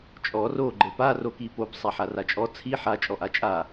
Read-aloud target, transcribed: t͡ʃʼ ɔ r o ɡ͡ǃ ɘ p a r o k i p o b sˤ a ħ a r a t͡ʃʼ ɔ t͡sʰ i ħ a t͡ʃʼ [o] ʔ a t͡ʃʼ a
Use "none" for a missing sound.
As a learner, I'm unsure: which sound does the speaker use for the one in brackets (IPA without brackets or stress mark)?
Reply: ɔ